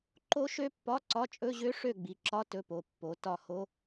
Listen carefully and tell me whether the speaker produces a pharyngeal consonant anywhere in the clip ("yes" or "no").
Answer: no